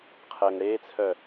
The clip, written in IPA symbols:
qʰ əː ŋ ɽ eː t͡sʰ œ

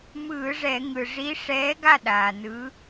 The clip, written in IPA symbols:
m ɯː˧˩˧ ʐ ɛ˧˩˧ ŋ ɯ˩ ʐ i˨˥ ʂ ɛː˨˥ ɡ a˥˩ ɗ aː˩ n ɯ˨˥

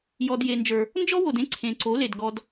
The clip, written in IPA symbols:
j ɔ˧ d j e˨ n d͡ʒ ə˞˨ | n d͡ʒ ɔ˦ w o˨ d ẽ˦ ǀʰ ẽ˨ ǀ o˨˦ l e˨ d ɡ ɔ˧ d

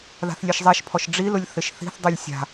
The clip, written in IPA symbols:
ð a̤ θ lʲ e ʃ zˤ ɛ ʃ pʰ ɔ ʃ ɖ͡ʐ i l ʊ lʲ θ ɪ ʃ θ i̤ θ dˤ u lʲ sʲ a̤

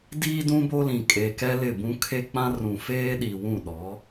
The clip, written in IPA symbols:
d iː˦ d ũ˦ b o˦ l ĩ˨ kʼ eː˨ k ɛ˦ l ɪ˦˨ b ũ˦ kʰ e˦ k͡p ã˦ r ũ˨ f eː˦ ɗ i˨ w ũ˦˨ ɗ ɔ˨˦

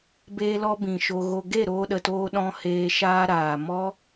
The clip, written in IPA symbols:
b eː˧ l ɔ˧ b ĩ˨ ʃ o˧ ɣ o˧ ɡ e˦˨ ɾ oː˧ ɗ ə˨ t oː˧ ɗ ɔ̃˧ h eː˧ ʃ aː˧ ɾ aː˨ m ɔ˦

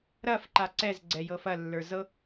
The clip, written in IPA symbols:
ɾ ɐ f ǃ a ǀ ɛ z ɡ͡ǀ ɛ j ɤ f ɐ lː ə˞ z ɤ

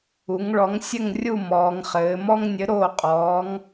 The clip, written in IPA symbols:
u˩˧ ŋ ɭ ɔ˨˥ ŋ sʲ ɘ˥˨ ŋ rʲ u˥˨ m ɔː˩˧ ŋ χ ɘː˩˧ m ɔ˦ ŋ nʲ ɘ˨˥ ɾ oː˥˨ qʼ ɔː˨˥ ŋ

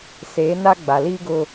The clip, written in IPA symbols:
s eː˨˦ n a˦ ɡ͡b a˨ l iː˦ ɡ ʊ˦

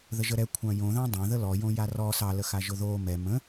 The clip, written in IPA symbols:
ð ə ʒ ə ɾ ɛ kʷʰ ɑ̃ j õ ð ɑ̃ dˤ ɑ̃ ð ə l ɔ j õ j a r ɔ s ɑ l ə x a ʒ ʊ ð o m ɛ m ə̃

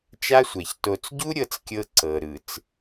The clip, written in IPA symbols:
t͡ʃ a˦ sʷ ɛ˨ ç t o˨ t͡s ɟ u˦ ɾʲ ɤ˦ t͡s kʲ ɤ˦ ǀ ɤ˨ ɾ ɯ˨ t͡s

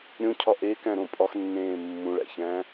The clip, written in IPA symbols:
ɾʲ õ cʰ ɒ ʔ e k æ̃ ɾ õ pʼ ɒ x nː ẽː mː ũ ɭ æ̰ ç æ̃ː

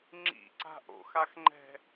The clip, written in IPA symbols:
ŋ͡ǁ ḭ ǀ a̤ ʔ o̰ x a x ŋ͡ǃ ɛ̤

